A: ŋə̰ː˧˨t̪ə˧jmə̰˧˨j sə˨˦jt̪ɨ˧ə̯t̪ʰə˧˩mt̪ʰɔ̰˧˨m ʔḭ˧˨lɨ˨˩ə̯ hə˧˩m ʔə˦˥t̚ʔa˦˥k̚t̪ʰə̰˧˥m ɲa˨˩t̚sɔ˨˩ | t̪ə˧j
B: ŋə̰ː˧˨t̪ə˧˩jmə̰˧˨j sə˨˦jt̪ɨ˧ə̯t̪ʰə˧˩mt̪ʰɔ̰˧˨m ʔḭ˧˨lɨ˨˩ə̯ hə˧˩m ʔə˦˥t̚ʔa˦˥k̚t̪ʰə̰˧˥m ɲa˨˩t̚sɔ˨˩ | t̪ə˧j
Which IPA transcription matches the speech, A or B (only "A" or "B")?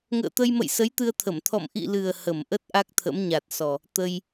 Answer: A